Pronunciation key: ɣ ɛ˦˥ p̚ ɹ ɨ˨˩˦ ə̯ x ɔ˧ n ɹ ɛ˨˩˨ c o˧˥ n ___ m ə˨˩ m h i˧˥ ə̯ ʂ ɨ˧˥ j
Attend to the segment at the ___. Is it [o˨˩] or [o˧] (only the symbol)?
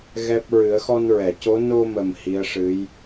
o˧